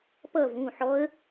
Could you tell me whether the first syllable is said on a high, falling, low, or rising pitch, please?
falling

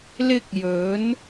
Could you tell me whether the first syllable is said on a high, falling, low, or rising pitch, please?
high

